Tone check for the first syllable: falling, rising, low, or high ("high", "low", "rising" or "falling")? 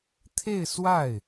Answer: falling